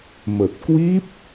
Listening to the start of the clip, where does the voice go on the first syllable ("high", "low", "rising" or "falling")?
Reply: low